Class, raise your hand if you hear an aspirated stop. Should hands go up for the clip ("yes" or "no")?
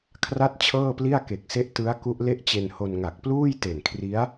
yes